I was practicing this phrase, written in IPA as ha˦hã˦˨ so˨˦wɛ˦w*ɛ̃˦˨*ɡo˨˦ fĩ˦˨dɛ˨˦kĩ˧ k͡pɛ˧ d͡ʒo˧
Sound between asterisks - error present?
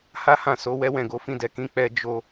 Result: no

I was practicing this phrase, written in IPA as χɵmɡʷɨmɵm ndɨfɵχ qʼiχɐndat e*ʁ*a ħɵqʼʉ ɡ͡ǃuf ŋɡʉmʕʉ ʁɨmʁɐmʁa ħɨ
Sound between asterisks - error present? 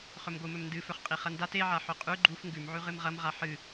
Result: yes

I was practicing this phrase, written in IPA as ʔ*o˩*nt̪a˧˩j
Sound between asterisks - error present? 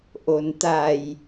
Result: no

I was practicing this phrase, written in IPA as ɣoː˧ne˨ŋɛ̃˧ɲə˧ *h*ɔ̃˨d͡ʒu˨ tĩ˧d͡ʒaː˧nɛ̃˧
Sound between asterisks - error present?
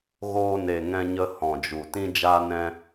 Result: no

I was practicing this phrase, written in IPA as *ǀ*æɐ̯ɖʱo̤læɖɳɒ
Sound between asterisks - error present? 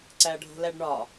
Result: no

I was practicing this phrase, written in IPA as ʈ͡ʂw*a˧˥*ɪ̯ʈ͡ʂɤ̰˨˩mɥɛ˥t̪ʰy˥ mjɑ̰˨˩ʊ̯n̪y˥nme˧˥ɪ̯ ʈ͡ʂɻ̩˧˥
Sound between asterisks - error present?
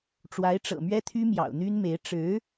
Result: no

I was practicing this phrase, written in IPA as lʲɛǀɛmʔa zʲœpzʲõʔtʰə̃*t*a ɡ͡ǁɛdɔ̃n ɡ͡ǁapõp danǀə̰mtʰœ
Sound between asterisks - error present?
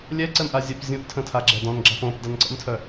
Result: yes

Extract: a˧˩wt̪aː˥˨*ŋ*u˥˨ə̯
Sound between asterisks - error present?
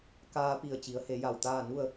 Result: yes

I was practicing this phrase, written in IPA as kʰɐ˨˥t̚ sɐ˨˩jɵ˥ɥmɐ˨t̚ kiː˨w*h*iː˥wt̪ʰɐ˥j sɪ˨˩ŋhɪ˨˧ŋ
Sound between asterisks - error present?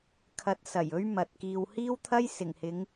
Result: no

